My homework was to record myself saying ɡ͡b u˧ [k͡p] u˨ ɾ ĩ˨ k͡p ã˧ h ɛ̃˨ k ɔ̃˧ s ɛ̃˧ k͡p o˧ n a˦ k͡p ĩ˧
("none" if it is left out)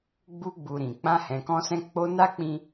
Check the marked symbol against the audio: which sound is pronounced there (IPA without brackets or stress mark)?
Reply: ɡ͡b